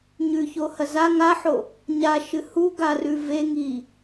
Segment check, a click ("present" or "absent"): absent